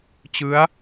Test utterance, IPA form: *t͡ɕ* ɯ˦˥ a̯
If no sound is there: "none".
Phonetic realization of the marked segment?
t͡ɕ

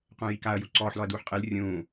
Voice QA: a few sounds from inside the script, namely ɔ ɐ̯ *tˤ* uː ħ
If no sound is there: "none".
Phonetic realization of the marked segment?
d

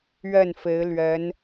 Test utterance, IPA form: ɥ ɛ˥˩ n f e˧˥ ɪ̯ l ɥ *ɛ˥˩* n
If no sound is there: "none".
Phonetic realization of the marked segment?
ɛ˧˥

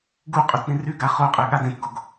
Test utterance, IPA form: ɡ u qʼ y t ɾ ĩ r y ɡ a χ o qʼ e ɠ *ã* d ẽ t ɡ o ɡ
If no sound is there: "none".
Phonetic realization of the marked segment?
a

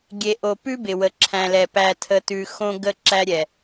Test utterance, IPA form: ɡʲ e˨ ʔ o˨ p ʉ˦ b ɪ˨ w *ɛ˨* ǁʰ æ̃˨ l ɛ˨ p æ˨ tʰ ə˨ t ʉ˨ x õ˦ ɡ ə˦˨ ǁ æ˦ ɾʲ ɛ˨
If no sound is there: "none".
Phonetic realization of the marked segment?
ə˨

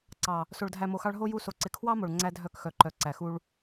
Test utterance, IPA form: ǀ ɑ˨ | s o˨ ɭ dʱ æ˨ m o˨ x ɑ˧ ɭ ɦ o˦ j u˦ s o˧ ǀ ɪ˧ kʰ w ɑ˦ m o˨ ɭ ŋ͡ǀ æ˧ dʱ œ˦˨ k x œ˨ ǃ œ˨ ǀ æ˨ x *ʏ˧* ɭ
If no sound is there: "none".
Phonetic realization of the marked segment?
u˧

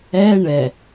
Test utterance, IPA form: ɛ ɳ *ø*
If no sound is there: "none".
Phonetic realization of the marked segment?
ɛ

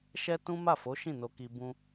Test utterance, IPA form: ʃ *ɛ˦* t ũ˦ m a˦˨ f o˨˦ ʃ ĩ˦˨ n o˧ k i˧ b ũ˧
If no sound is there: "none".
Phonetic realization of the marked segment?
ɛ˦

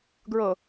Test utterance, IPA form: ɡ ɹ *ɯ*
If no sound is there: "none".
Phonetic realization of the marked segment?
ɤ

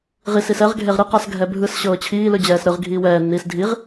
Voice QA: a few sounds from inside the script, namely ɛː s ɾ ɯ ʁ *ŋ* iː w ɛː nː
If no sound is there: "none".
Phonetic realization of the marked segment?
ɡʱ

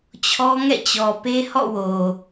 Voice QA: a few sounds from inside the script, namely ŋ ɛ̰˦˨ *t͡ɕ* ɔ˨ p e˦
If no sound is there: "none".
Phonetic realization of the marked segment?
t͡ɕ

